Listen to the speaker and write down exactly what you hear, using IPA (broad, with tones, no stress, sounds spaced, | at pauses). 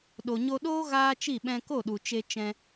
ɗ o˨ ɲ o˧ ɗ oː˦ ɣ aː˦ t͡ʃ i˦˨ ɓ ɛ̃˧ k o˦˨ ɗ u˨ t͡ʃ e˧ t͡ʃ ɛ̃˧